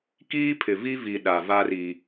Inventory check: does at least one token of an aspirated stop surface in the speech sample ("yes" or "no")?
yes